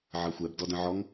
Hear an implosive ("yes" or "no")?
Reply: no